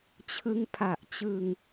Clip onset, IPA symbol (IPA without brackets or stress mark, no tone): t͡ɕʰ